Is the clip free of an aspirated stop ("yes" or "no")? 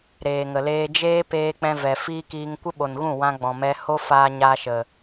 yes